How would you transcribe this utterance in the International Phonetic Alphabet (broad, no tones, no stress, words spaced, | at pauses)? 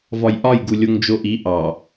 vɒjʔɒj ɡulʲoŋd͡ʒoʔi ʔɑ